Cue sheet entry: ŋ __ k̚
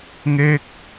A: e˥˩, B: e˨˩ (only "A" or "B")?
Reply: A